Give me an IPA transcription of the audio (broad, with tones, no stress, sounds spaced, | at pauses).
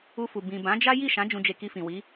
u˧ f u˨ b ĩ˨ b ã˨˦ d͡ʒ a˦ j i˦˨ ʃ ã˨˦ d͡ʒ ũ˧ d͡ʒ e˧ k i˧ f ĩ˨ w i˨˦